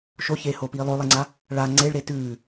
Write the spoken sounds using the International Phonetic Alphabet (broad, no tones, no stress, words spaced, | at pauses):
ʃoçeːhoːpiː lˠolˠeŋ͡ǀa | ɭa ŋ͡ǀeɭɾe tʉː